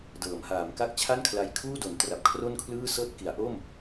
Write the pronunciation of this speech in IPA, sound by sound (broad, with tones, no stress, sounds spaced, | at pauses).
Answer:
d ɤː˩˦ m h aː˩˦ m k a˥˩ k̚ t͡ɕʰ a˥˩ n kʰ l a˧ j kʰ uː˥˩ d o˩˦ n t r a˨˩ p̚ kʰ r o˥˩ n kʰ l ɯː˥˩ s ɤː˥˩ t̚ k i˩˦ a̯ ʔ o˥˩ m